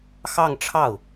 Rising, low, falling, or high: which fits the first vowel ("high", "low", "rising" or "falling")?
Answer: falling